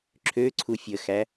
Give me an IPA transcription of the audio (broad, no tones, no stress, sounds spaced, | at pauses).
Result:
ǁʰ ø ǀʰ u fʲ ə x æ